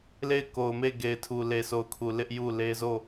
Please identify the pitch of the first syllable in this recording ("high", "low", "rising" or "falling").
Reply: falling